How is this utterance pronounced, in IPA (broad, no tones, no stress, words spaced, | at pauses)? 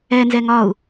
ɛnzɛ ŋɒu̯